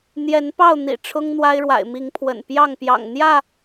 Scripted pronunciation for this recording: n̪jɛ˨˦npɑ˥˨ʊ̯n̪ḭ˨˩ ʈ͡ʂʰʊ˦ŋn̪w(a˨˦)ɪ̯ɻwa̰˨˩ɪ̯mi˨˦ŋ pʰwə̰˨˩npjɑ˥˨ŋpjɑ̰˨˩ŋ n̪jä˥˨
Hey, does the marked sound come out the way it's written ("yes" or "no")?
no